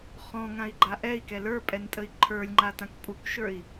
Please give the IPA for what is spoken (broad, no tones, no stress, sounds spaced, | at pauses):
χ ɔ̃ ŋ ã i̯ ɡ͡ǃ a ʔ ɛ i̯ k ɛ l ə˞ pʼ ɛ n tʼ ə i̯ ǃʰ ə˞ lʲ ŋ͡ǃ a t ã k pʼ u k ʃ ə˞ i̯